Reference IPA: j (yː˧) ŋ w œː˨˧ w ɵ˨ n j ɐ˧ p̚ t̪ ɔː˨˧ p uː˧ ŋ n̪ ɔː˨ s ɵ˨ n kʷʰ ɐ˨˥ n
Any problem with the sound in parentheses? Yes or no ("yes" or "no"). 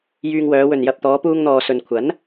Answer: no